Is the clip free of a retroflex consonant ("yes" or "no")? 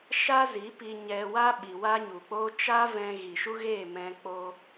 yes